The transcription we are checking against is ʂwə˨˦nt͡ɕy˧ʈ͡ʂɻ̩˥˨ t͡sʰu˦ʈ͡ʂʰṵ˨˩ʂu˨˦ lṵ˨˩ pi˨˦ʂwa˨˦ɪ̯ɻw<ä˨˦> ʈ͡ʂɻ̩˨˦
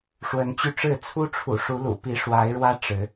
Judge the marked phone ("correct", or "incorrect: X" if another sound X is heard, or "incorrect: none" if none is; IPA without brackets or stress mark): incorrect: ä˦